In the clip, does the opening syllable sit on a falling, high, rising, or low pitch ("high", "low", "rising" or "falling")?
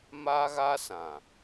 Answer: high